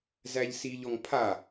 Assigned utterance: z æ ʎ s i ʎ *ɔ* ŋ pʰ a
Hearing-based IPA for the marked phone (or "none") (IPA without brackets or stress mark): ɔ